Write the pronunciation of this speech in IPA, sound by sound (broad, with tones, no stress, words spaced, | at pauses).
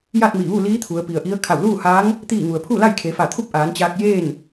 ja˥˨t̚mi˧˩ʋu˥˨liː˧˥ t̪ʰu˩˧ə̯pi˩ə̯ʔi˧˥ə̯ kʰa˧˩wluː˥˨haː˧˥ŋ | t̪iː˥˨ ŋu˩ə̯pʰu˥˨la˥˨j kʰe˩˧fa˧˩t̪ʰu˥˨p̚ ʔaː˩˧nt͡ɕaː˧k̚jeː˥˨n